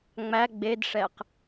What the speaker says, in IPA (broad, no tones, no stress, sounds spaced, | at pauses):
ŋ͡m æ ɡ͡b e d ʂ ɛ q